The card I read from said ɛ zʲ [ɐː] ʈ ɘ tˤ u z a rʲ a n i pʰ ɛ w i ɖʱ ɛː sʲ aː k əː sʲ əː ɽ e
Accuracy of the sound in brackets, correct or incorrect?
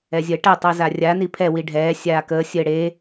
incorrect